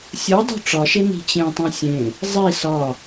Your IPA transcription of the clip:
sʲ o dˤ o̤ ʈ͡ʂ ɒ ʃ e n i̤ t͡ɕ ẽ tˤ õ sʲ ẽ | zˤ i s ɒ

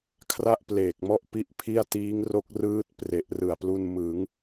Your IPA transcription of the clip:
kʰ r a˥˩ ʔ p l eː˨˩ k̚ m ɔ˥˩ ʔ p i˥˩ ʔ pʰ i˥˩ a̯ t iː˦˥ ŋ r o˦˥ k̚ r ɯː˦˥ t̚ p r e˨˩ ʔ r ɯ˨˩ a̯ p l u˧ n m ɯ˩˦ ŋ

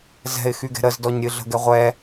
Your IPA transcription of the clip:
z ɛ̤ ɪ̯ x y ɡ ɛ̤ ɾ ə z d ɔ ɲ ɾʲ ɨ ɮ ə̤ ɡ ɛ ʁʷ ɛ

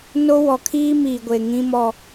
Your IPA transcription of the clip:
n o˦ w ɔ˨ kʰ iː˦ m iː˨ ɡʷ eː˨ ŋ ĩ˦ m ɔ˦

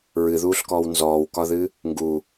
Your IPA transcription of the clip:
ɹ ɨ ð uː ɬ k ɔː w n z ɔː w k ɒ ð ɨ | ŋ ɡ u

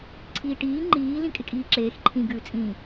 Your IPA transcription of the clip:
ǀʰ iː ʈ iː ŋ͡ǃ iː l ĩ kʼ ɪ kʼ iː ǁ eː x ǃʰ ĩ ɡ ʉː t͡sʼ ĩ

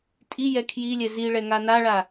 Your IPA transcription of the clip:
tʼ i j ɛ kʰ j i lʲ ɛ z i ɭ ɛ ŋ a n a ɭ a

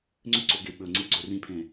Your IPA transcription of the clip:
ŋ͡ǀ ʏ ǀ o ɡ e ɓ ɵ ŋ͡ǀ e ɡ͡ǀ ɵ r ĩ pʰ ẽ

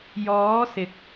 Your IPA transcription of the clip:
j ɔː˨˧ s ɪ˨ k̚

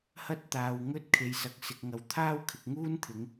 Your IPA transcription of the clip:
h ɐ˥ t̚ t̪ aː˨ w ŋ ɵ˥ t̚ kʰ e˨ j s ɐ˨ k̚ s ɪ˨ k̚ ŋ ɐ˨ w t̪ʰ aː˥ w kʰ ɪ˨ k̚ ŋ uː˥ n t̪ʰ ɪ˨˧ ŋ

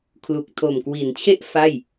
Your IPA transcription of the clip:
kʰ l u˨˩ k̚ tʰ o˨˩ m k w i˩˦ n t͡ɕʰ e˥˩ ʔ f a˥˩ j

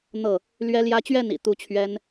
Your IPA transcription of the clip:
n̪ ɤ˥˨ | l ɥ ɛ˦ l j ä˦ t͡ɕ ɥ ɛ˥˨ n ḭ˨˩ t̪ u˨˦ t͡ɕʰ ɥ ɛ˦ n

